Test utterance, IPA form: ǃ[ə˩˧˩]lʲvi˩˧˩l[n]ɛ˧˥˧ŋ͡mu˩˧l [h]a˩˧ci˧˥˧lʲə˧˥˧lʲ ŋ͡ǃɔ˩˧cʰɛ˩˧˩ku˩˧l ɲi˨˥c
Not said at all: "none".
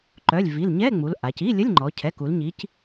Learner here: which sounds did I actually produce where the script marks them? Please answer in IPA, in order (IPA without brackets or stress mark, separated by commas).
œ˩˧˩, ɲ, ʔ